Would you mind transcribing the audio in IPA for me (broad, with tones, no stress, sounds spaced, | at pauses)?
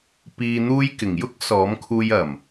p iː˧ n̪ uː˧ j k ɪ˨˩ ŋ j ʊ˥ k̚ s ɔː˨˥ m kʰ uː˧ j ɐ˨˩ m